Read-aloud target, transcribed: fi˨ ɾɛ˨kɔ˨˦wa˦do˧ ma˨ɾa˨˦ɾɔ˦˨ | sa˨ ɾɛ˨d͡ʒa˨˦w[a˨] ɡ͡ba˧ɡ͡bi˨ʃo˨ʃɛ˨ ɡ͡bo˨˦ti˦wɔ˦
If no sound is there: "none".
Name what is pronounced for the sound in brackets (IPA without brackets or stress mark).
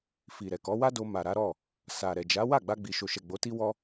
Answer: a˦˨